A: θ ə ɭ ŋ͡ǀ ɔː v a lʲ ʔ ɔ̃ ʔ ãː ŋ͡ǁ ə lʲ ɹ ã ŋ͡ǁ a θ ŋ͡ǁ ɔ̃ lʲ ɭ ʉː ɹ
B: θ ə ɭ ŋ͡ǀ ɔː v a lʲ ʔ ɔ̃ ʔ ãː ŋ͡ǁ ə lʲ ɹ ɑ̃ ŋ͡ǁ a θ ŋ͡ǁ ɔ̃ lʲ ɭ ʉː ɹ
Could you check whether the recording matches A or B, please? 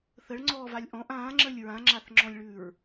A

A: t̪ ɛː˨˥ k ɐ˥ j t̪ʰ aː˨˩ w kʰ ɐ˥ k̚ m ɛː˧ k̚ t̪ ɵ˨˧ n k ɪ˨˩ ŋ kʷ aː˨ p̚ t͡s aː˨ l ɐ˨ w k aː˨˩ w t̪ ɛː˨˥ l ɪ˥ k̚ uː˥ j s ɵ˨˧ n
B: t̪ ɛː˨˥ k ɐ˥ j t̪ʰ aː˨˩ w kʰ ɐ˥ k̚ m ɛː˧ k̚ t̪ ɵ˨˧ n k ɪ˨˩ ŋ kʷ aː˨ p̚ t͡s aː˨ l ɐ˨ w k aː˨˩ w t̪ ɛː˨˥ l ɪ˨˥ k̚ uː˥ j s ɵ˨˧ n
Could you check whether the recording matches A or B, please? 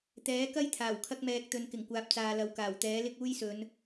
A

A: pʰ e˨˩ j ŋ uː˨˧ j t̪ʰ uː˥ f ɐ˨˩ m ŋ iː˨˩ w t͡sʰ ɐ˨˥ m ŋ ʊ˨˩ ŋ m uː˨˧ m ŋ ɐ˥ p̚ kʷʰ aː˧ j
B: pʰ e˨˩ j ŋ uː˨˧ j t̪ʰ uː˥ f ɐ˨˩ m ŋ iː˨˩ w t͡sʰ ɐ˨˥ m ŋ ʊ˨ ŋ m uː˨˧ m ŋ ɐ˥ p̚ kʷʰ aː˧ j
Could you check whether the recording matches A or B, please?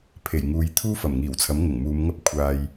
A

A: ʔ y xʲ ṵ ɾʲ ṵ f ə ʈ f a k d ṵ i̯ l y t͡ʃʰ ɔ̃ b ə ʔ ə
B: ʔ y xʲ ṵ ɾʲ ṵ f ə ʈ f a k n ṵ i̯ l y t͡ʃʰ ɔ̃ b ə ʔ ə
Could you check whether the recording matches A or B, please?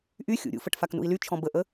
B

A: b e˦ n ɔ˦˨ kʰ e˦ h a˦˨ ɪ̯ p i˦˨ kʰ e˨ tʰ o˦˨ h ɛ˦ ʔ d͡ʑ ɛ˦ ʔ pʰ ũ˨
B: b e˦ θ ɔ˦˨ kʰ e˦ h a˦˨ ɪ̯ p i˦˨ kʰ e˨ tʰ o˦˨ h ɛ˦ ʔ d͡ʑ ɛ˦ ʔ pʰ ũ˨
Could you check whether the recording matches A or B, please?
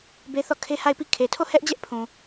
B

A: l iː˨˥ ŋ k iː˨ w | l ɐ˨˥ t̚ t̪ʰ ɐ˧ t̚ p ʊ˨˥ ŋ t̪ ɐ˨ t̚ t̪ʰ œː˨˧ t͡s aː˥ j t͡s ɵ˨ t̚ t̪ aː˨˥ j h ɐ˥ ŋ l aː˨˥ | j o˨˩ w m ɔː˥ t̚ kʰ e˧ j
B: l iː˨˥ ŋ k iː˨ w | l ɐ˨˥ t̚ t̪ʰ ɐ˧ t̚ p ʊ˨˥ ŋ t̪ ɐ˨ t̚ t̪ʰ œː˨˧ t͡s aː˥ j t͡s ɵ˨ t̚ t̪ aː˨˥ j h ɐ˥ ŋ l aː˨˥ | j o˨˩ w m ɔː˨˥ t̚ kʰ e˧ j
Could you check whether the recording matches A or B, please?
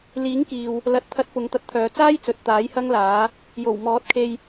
B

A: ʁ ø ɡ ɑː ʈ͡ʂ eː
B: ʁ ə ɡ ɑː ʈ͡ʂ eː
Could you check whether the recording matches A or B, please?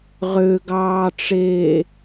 A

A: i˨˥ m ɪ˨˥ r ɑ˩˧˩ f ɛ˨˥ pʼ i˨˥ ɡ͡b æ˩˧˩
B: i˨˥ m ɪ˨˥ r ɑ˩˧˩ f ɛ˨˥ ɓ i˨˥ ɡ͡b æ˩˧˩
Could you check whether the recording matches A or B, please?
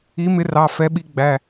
B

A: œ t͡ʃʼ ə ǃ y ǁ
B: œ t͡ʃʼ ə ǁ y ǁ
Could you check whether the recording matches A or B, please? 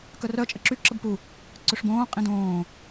B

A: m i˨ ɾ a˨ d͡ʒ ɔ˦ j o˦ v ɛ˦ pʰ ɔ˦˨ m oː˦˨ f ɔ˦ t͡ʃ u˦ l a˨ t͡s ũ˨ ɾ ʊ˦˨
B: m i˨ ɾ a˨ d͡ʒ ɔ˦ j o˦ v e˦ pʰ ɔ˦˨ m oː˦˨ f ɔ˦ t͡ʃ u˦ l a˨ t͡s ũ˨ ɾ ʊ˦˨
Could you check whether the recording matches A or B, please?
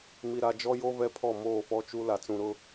A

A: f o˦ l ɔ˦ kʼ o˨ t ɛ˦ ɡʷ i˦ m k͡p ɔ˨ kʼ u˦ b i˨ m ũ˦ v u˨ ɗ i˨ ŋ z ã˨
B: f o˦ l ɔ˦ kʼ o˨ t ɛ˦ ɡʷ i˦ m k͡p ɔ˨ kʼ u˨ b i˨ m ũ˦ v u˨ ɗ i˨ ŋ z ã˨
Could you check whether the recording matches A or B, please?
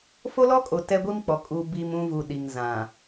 B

